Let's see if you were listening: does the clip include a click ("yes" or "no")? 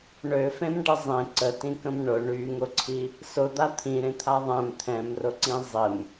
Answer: yes